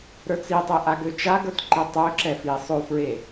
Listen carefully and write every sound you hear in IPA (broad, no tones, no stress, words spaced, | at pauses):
ɾə˞t͡sitˤe ʔaɡøt͡ʃaɡə˞t ǃetˤøǁɛ fi sˤofɹe